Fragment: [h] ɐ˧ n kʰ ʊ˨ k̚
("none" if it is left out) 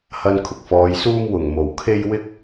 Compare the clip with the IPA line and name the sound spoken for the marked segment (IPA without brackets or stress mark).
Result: h